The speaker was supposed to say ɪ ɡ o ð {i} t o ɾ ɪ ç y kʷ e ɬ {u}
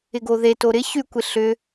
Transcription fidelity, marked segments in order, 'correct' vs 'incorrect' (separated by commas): incorrect, incorrect